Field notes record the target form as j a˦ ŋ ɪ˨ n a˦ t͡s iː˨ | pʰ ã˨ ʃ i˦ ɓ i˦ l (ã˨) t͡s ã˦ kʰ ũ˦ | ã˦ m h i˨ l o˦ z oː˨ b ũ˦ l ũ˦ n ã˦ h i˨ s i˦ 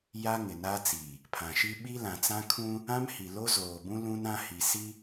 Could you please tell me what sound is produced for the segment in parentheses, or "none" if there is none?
ã˨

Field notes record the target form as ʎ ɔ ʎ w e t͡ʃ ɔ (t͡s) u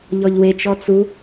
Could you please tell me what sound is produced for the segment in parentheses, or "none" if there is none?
t͡s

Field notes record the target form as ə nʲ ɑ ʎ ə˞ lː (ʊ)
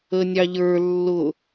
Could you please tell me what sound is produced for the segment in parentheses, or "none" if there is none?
ʊ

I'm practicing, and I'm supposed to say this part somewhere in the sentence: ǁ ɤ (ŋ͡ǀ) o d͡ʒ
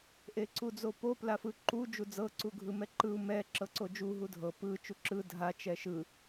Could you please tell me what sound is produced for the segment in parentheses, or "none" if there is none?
ǀ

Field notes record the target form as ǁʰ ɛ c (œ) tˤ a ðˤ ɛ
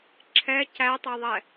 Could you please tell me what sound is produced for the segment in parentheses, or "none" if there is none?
æ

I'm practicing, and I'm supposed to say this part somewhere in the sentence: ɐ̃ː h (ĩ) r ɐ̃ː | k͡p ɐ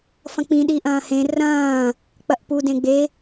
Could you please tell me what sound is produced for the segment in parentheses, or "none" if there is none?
ẽ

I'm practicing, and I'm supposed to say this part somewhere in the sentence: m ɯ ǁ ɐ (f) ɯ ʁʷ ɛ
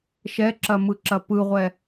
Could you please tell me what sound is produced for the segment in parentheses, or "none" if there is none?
p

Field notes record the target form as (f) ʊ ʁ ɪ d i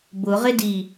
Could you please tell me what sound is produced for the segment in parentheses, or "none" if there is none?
b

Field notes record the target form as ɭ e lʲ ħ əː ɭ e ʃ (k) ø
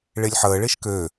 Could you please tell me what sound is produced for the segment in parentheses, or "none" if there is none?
k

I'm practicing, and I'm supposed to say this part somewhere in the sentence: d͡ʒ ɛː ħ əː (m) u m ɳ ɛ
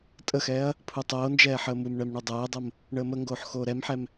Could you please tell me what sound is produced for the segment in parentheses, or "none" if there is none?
m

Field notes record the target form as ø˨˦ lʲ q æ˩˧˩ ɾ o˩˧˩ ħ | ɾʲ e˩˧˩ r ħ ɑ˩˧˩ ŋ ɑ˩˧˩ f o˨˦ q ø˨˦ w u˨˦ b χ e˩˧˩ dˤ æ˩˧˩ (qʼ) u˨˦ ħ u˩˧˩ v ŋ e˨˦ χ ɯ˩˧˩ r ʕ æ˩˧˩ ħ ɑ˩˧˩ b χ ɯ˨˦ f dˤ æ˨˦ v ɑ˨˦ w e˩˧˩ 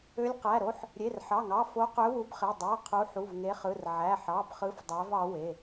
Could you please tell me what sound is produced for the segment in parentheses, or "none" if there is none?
qʰ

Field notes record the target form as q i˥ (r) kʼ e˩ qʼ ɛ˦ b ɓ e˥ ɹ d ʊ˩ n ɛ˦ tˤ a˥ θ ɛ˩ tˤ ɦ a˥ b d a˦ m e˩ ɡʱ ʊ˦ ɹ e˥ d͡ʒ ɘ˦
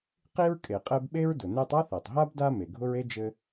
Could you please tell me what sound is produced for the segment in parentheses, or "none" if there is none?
ɹ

